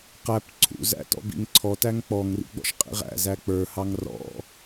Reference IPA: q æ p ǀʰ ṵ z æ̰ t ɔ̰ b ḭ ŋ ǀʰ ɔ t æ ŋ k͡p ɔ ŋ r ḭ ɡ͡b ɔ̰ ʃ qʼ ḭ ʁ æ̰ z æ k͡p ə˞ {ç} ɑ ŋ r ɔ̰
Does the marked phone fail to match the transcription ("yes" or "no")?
yes